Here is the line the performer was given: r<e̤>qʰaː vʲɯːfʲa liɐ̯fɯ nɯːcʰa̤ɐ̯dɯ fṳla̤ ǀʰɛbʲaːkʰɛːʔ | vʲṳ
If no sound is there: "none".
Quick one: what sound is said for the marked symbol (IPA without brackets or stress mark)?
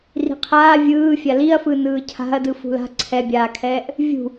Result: i̤